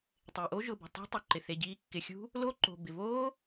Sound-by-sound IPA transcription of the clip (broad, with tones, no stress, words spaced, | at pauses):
tˤɪː˩ʔo˦˥ʒʊ˩˧˩bṳ˩ tˤṳ˦˥ tˤu˩˧˩ǃɪ˩θe˩˧˩ɟiː˦˥ kːɪ˩xʲṳ˦˥ | lo˦˥ǃo̤˩ bɪ˩ voː˦˥